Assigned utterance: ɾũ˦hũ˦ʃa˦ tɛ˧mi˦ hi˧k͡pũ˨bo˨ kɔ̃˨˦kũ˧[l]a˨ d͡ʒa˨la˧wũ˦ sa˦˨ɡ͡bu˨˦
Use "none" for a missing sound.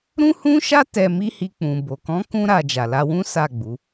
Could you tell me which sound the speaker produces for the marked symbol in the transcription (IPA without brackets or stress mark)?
ɾ